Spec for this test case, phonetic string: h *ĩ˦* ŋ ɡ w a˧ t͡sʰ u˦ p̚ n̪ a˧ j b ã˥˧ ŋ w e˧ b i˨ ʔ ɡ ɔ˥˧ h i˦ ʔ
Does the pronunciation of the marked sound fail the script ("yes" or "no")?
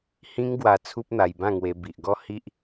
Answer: no